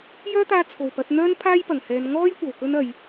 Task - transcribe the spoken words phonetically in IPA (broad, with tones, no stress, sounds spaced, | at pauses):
j œː˥ t̪ aː˧ t͡sʰ o˨˩ w p ɐ˨˥ t̚ n̪ œː˥ n pʰ aː˥ j p ɐ˨˩ ŋ h ɛː˨˧ n ŋ ɔː˥ j kʷ ɐ˨˩ w k ɵ˥ n ɐ˨˧ j